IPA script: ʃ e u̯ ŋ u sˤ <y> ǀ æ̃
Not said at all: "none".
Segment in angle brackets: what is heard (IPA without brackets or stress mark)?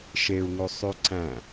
y